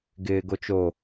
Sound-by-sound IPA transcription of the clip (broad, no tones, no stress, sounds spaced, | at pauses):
ɡ ɪː ɡ o t͡ʃ o